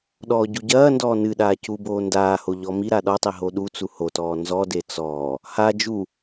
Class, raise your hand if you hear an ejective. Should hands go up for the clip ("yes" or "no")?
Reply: no